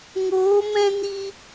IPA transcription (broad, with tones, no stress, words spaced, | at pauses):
ŋoː˨˦mɛ̃˦ni˦